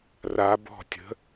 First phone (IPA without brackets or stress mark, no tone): r